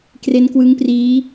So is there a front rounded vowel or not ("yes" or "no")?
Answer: no